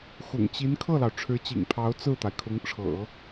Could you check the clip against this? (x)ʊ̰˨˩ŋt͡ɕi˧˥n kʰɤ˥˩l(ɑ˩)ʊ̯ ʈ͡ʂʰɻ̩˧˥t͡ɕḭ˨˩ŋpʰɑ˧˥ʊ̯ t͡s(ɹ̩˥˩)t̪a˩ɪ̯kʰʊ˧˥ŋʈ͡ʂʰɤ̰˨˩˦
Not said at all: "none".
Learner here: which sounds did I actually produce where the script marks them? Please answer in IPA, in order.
x, ɑ˩, ɹ̩˥˩

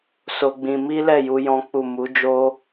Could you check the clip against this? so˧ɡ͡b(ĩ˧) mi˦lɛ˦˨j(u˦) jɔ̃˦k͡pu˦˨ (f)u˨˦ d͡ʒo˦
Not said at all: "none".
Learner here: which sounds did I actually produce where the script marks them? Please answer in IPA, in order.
ĩ˧, u˧, m

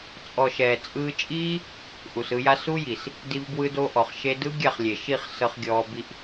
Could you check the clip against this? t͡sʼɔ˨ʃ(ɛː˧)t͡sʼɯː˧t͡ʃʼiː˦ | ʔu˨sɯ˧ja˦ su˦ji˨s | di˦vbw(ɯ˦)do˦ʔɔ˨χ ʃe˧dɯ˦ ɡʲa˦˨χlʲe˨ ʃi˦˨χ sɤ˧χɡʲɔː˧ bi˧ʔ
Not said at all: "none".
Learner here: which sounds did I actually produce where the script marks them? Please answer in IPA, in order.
ɛː˨, ɯ˦

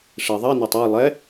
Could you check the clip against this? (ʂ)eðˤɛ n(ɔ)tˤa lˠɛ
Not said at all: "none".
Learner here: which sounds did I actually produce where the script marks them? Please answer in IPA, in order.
ʂ, ɔ

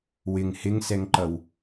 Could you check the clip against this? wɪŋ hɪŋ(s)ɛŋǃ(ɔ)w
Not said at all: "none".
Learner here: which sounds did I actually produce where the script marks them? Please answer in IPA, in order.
s, ʌ

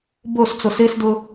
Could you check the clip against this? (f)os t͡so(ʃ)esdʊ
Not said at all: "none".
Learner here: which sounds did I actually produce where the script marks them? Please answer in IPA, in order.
b, s

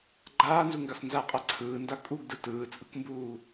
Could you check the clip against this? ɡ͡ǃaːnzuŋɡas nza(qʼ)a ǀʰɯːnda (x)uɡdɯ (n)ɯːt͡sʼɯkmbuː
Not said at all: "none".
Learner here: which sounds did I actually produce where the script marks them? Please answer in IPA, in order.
qʼ, kʼ, t

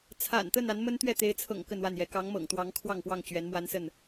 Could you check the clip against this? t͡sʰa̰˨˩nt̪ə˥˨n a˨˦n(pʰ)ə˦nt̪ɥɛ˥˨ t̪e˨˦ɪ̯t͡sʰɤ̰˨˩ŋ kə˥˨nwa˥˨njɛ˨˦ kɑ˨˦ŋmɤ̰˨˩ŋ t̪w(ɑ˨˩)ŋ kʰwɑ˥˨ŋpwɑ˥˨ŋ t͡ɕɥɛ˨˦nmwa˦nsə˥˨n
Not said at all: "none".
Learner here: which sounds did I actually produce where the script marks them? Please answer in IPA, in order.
m, ɑ˨˦

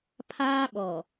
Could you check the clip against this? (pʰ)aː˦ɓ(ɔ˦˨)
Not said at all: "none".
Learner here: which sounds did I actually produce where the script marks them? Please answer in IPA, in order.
pʰ, ɔ˨

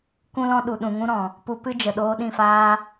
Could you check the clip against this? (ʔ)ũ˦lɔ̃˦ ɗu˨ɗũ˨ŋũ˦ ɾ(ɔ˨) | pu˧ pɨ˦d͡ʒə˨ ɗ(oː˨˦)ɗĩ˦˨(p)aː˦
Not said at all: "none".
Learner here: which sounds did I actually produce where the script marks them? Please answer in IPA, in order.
k, ɔ̃˨, oː˧, f

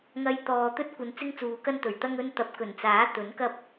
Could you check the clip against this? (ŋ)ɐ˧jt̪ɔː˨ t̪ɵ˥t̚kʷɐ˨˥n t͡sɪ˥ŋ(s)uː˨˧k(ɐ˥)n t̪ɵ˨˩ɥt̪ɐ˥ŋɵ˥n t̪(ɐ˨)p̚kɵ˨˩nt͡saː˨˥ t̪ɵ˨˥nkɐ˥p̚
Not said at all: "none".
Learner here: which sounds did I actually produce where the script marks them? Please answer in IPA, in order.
ŋ, t͡s, ɐ˥, ɐ˨

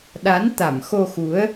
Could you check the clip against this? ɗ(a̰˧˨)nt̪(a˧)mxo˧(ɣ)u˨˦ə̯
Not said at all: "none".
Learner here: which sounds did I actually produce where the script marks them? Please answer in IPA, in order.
a˨˦, a˧˩, x

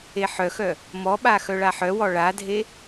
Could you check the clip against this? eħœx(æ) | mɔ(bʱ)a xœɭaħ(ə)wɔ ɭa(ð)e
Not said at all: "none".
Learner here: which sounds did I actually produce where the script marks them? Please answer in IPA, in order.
œ, ɓ, œ, dʱ

